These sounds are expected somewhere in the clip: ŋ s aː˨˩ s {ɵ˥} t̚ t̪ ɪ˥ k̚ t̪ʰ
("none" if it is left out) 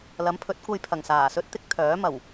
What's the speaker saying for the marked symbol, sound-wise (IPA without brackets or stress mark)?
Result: ɵ˥